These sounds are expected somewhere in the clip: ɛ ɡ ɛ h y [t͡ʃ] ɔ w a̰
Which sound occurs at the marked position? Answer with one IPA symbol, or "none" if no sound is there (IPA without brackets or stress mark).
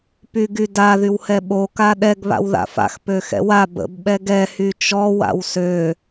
t͡ʃ